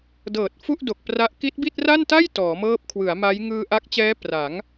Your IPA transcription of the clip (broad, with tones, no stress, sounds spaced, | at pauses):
d ɤː˨˩ t̚ f u˥˩ ʔ d o˨˩ k̚ p r a˦˥ ʔ k i˦˥ t̚ b i˥˩ t̚ r a˥˩ n t a˥˩ j t ɔː˩˦ m ɤː˦˥ p̚ kʰ w ɯ˩˦ a̯ m a˦˥ j ŋ ɯː˧ ʔ a˦˥ k̚ t͡ɕ ɛː˦˥ p r a˩˦ ŋ